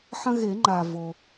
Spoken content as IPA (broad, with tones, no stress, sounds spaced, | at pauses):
ħ ɐ̃˦ ɣ e˨˩˦ ŋ͡ǃ a˩ v o˩